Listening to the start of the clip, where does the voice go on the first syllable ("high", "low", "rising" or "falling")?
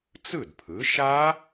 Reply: falling